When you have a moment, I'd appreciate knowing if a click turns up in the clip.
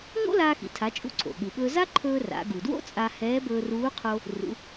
yes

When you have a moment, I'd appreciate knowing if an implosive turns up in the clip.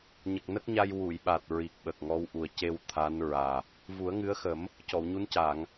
yes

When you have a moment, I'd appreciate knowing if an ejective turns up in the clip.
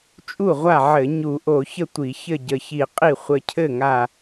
yes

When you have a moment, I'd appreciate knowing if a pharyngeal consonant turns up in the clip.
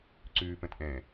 no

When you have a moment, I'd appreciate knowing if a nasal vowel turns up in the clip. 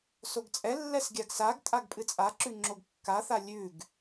no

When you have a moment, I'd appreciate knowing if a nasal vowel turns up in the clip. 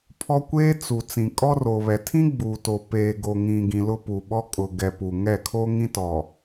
yes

